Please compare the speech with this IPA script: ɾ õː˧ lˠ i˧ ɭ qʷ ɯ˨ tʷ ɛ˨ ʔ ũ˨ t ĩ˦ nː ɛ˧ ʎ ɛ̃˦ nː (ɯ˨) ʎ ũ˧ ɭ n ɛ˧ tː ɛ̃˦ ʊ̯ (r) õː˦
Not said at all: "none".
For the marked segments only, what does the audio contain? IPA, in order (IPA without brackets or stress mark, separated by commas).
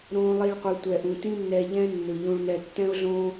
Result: ɯ˨, ɮ